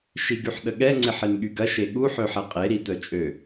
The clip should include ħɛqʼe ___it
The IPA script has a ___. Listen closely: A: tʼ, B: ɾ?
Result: B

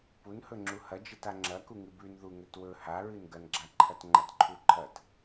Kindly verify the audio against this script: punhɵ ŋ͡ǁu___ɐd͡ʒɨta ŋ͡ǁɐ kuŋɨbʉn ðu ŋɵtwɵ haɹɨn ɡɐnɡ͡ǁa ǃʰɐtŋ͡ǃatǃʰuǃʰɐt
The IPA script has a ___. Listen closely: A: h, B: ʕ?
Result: A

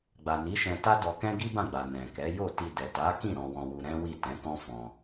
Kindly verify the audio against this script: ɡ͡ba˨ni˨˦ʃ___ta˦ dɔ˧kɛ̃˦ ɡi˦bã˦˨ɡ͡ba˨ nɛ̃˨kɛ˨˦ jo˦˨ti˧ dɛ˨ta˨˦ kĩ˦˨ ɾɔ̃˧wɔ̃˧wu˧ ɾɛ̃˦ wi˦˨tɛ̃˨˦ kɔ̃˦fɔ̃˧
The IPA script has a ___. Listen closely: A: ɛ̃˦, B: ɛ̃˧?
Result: B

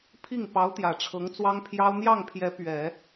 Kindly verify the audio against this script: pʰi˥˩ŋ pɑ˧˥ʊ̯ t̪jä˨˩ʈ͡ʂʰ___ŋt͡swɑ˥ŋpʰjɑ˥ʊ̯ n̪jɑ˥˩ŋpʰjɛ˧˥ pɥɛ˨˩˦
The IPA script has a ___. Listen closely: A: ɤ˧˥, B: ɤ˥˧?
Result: A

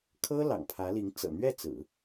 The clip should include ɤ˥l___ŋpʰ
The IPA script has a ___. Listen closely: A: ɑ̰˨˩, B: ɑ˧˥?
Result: A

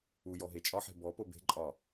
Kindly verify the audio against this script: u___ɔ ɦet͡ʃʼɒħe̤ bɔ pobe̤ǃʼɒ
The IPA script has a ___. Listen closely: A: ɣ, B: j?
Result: B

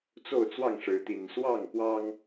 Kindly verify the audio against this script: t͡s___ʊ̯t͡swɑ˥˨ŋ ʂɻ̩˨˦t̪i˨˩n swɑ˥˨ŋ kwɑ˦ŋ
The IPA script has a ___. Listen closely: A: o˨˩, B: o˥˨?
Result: B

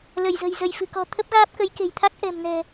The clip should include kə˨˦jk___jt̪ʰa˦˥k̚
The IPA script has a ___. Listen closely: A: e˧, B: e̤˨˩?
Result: B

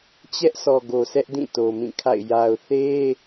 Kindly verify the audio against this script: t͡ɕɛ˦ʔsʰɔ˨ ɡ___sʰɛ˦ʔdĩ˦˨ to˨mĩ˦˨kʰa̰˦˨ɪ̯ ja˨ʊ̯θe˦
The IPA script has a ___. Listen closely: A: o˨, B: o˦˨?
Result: A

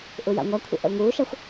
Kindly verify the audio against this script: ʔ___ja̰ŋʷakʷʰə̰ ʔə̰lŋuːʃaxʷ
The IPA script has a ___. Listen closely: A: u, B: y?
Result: A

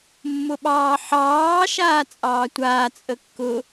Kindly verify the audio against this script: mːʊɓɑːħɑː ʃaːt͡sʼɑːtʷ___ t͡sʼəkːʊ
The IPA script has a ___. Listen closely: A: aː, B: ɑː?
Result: A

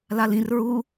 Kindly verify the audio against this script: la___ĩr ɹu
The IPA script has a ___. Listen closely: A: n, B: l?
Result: B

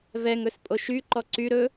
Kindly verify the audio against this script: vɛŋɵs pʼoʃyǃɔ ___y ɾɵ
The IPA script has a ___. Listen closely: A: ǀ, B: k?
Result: A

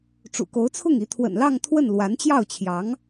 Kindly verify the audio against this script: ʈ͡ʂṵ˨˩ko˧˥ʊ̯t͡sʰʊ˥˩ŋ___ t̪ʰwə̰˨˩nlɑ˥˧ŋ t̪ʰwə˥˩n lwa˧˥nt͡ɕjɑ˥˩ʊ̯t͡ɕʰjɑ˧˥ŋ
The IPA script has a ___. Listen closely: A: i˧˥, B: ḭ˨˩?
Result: A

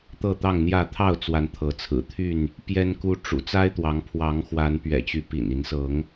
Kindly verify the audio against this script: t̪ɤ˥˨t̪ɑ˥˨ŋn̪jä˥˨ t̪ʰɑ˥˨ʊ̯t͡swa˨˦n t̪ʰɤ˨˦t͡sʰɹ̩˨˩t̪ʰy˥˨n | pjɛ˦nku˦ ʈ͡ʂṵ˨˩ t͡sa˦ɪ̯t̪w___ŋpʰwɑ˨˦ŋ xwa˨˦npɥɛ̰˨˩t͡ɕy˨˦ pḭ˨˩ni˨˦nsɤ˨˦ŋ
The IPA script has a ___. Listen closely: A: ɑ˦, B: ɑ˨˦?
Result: B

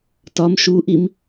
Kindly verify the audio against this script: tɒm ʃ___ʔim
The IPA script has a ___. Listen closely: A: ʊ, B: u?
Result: B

